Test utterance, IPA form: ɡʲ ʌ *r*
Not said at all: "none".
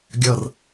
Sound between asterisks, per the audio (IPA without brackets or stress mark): r